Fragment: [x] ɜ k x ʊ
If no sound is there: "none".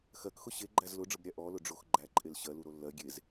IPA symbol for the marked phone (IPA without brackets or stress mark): x